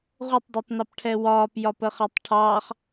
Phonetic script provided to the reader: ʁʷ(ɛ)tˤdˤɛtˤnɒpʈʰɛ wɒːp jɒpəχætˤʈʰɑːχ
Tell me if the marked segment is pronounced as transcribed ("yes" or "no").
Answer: no